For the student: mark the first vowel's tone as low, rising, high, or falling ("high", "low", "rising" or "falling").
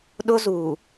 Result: high